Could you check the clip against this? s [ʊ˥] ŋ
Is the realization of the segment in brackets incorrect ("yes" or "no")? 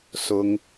no